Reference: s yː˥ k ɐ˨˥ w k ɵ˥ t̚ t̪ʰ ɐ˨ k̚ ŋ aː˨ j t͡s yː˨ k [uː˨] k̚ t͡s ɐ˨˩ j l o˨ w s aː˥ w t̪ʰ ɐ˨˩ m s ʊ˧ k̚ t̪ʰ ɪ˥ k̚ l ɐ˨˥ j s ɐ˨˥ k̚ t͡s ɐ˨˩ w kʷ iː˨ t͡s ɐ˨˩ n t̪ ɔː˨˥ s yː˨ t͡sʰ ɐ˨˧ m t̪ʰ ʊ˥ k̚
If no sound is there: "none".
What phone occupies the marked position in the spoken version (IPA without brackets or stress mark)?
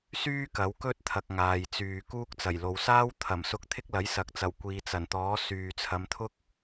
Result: uː˥